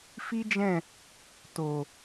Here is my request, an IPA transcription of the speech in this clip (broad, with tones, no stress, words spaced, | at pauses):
fi˦d͡ʒɛ̃˦˨ | to˨